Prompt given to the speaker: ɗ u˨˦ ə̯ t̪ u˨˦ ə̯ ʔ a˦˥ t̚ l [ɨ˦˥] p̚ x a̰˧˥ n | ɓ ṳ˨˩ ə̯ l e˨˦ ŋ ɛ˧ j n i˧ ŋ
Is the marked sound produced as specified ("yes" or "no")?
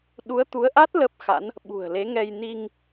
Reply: no